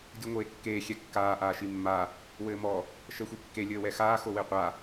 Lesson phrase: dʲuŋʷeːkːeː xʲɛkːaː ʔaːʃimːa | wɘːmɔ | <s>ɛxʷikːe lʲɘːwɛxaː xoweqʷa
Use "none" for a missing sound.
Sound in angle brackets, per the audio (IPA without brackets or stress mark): ʃ